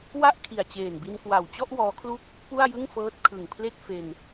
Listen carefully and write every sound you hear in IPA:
wa˥˩ʔkʰi˨˩a̯ t͡ɕeː˨˩nbi˧nkwa˨˩wt͡ɕɔ˥˩ʔ wɔː˦˥kʰlu˥˩k̚ | pu˥˩a̯jɯ˥˩ŋfɤː˦˥t̚ kʰɯ˨˩ŋpʰle˥˩k̚ fe˧n

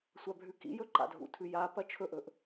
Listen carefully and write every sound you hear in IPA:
sʷabʱʉkḭjɵ ǃa̰dʱṵtʰʉ japɐ t͡ʃʰɵʔɵʔ

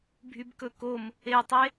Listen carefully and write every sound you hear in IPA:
bʱybkɵkom | etˤe

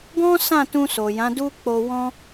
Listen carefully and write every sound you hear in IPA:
ɡɔ̃˦sã˦˨tũ˧ so˨jã˨˦du˦ k͡po˧wɔ̃˦

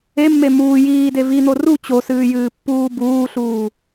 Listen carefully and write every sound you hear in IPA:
emːe muː jiːde vin̪o ru t͡ɕosɨːjɨːpːuː buːɬuː

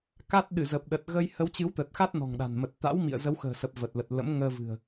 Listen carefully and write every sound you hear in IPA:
ka˦˥t̚ ɗɨ˧˩zə˨˩p̚ɗə˨˩t̚ ɣə˧j hə˨˦wt͡ɕɨ˨˦wt̪ə˨˩t̚xa˦˥t̚ nɔ̤˨˩ŋɗa̤˨˩n mə˨˩t̚t̪a̰˧˥wmḭ˧˨ə̯ zə˨˦wxə̤ː˨˩sə˨˩p̚ və˨˩t̚lə˨˩t̚ lə̰˧˥mŋəː˧vɨ̤˨˩ə̯

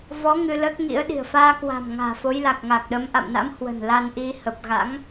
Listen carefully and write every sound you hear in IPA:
vɔ˨˦ ŋɨ˧ləː˦˥k̚ŋḭ˧˥ə̯ ɗi̤˨˩ə̯faː˧ kwa̤˨˩mŋa̤ː˨˩ fo˨˦jla˨˩k̚ŋa˨˩k̚ɗə˨˦m ʔa̰˧˨mna̰˧˥mhwə̤˨˩n la˧nʔi˧ hə˨˩p̚ɣa̰˧˥ŋ

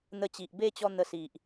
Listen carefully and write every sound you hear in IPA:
n̪ə˧t͡ɕi˨ʔbe˥˧t͡ɕɔ˧ n̪ə˧si˨ʔ

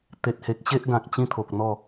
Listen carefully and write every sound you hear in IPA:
t̪e˨t̚he˨k̚ ɕe˦ʔɡã˨k̚ t͡ɕĩ˦t̪ʰo˨k̚ n̪ɔ˥˧

